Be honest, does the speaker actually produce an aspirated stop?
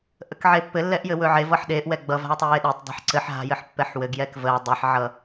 no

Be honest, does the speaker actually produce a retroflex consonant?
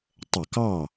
no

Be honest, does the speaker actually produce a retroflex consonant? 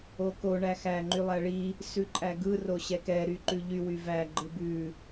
yes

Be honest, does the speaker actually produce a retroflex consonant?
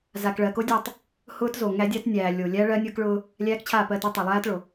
yes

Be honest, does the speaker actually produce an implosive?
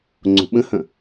yes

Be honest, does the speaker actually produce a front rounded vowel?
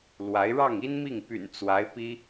yes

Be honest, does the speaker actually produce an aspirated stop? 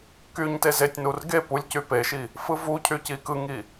yes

